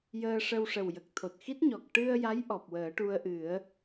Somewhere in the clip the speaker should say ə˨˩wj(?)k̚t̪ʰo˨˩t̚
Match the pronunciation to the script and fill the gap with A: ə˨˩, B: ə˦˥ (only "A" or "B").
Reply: A